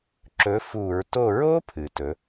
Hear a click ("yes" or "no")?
yes